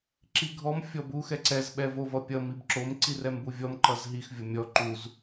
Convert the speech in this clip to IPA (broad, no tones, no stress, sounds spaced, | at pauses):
ǁ i ɡʱ ɔ m fʲ ɔ b u x ɛ ǀ ɛ z ɓ ɛ v o v ʌ pʲ ʌ m i b ǁ o m ǀ i r ɛ m b u vʲ ɔ m ǃ ʌ z ɦ i x vʲ ɔ mʲ ɔ ǃ u z